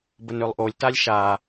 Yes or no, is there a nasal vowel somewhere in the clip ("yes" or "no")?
no